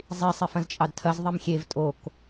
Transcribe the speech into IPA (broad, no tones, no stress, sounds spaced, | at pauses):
zˤ i sˤ e f ɐ̃ z t͡ʃʼ ɑ d tʰ ɐ z ðˤ i m xʲ e v tʼ o k